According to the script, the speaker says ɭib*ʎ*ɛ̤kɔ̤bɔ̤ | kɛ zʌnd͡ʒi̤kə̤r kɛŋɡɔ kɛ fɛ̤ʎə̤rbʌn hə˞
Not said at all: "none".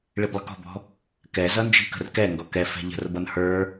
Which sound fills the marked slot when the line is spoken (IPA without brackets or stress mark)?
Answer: lˠ